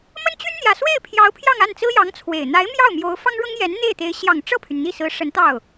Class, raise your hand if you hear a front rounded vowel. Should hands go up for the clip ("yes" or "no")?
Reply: yes